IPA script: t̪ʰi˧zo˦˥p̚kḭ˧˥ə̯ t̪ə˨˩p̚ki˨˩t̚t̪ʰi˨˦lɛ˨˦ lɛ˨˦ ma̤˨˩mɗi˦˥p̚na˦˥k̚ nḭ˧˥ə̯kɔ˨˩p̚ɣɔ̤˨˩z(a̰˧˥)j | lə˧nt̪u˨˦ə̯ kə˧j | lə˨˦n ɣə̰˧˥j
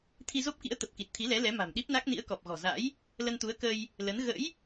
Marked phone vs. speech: correct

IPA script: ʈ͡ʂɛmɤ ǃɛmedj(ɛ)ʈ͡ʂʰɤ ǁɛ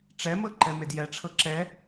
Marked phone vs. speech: correct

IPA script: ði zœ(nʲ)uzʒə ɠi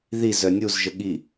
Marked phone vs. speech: correct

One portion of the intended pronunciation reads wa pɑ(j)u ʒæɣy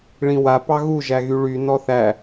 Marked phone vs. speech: incorrect: ɣ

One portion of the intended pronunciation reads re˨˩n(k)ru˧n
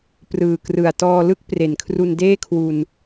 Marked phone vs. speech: incorrect: kʰ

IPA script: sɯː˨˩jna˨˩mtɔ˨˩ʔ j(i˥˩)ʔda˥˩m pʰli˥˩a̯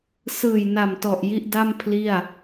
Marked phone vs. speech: correct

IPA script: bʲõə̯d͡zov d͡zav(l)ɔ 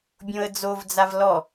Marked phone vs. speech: correct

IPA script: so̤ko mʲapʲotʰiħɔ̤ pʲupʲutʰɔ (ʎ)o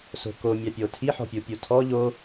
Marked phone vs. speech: correct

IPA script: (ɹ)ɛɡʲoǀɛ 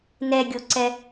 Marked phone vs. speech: incorrect: n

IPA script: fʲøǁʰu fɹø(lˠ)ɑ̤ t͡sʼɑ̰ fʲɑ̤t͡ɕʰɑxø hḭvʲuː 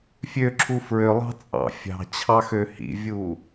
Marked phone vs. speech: correct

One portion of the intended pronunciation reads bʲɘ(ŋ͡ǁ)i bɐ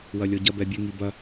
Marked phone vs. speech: incorrect: ŋ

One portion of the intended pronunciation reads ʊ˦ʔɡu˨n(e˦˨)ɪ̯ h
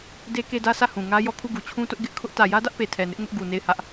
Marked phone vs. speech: correct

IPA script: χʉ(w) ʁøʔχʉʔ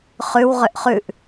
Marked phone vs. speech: correct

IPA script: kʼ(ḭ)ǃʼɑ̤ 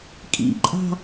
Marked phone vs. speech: correct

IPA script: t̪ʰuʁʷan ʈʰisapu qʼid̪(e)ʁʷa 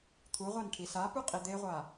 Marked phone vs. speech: correct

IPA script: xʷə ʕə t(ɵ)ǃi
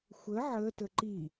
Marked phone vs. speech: incorrect: ə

